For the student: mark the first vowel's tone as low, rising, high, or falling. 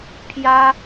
high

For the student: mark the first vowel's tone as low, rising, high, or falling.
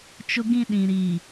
high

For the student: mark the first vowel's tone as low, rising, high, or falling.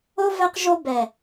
high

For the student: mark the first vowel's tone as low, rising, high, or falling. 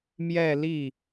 falling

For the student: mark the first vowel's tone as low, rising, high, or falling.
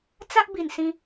high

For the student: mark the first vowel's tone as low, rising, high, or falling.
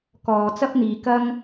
low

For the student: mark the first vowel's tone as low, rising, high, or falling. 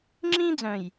high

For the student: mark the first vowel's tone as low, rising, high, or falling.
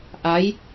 rising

